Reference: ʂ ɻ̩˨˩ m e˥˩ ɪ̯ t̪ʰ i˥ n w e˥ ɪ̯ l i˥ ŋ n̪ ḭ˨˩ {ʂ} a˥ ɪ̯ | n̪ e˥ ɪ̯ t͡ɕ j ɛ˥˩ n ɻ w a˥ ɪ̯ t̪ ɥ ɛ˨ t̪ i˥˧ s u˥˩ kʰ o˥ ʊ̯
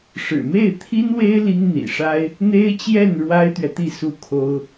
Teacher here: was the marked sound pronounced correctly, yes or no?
yes